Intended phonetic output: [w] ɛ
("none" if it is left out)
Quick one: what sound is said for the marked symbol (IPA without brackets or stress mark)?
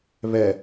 β